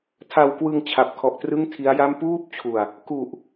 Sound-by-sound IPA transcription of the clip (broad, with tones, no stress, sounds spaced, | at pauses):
tʰ a˧ w k w ɯ˧ ŋ t͡ɕʰ a˨˩ p̚ kʰ ɔ˨˩ ʔ t r ɯ˥˩ ŋ tʰ i˦˥ a̯ j a˥˩ m p uː˥˩ p̚ t͡ɕʰ u˨˩ a̯ | k u˨˩ ʔ